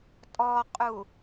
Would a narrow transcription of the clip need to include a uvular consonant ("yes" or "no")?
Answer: yes